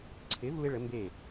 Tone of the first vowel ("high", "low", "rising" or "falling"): rising